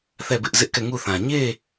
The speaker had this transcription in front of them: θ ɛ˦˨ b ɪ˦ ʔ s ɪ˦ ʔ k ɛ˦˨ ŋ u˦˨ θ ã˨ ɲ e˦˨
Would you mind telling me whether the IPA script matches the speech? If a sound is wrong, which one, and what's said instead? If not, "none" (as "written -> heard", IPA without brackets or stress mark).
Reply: s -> z